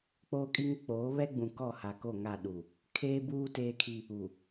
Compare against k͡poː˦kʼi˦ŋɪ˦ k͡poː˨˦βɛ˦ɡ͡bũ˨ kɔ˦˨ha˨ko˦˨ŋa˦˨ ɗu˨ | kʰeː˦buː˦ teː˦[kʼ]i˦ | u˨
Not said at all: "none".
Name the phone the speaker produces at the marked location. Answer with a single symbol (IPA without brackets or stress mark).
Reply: kʰ